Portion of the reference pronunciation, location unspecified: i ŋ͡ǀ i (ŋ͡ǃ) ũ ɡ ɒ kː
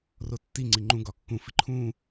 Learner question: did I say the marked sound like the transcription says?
yes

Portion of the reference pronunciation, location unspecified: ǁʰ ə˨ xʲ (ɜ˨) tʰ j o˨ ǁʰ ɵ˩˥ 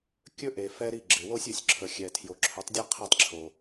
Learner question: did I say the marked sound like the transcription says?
no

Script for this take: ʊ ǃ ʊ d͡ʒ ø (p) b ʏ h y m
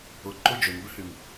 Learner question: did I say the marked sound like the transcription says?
no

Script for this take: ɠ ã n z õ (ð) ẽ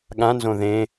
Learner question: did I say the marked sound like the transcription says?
yes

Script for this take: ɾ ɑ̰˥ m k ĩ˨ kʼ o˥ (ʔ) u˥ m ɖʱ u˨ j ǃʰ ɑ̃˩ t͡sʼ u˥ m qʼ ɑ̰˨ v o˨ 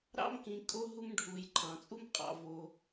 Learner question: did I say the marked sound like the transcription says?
no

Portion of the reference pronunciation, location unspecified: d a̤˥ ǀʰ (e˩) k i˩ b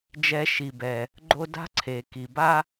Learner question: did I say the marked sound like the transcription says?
yes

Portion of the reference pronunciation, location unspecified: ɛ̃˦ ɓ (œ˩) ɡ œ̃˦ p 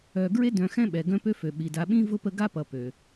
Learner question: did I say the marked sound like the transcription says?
no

